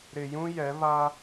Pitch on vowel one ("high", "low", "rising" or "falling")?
low